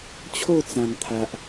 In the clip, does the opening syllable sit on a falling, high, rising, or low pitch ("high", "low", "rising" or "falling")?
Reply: falling